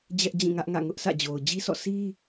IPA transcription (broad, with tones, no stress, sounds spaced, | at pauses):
d͡ʑ ɛ˦ ʔ d͡ʑ ĩ˦˨ ŋ ä˦ ʔ ŋ ä̰˦˨ ŋ ʊ˦ ʔ s ä̰˦˨ d͡ʑ o˨ ʊ̯ d͡ʑ i˦ sʰ ɔ̰˦˨ s i˦